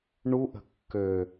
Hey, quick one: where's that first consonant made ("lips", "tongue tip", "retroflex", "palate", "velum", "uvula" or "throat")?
retroflex